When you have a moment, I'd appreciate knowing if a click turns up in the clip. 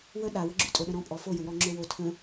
yes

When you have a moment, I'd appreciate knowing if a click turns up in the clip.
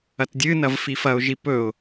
no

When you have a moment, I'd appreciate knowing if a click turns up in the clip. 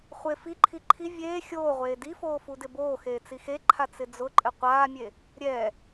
yes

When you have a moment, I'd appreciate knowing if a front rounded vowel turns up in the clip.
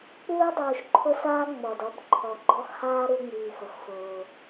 no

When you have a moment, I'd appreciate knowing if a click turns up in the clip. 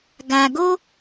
no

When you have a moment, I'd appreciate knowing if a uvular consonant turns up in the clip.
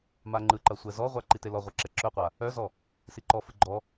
yes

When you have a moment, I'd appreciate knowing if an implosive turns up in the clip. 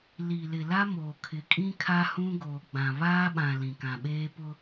yes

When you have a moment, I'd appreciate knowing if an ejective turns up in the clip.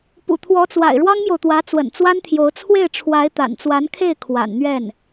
no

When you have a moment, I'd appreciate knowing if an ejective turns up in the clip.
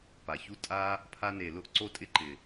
yes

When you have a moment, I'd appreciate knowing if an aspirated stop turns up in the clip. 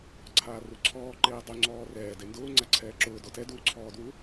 yes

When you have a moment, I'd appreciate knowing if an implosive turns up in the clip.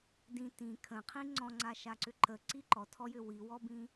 no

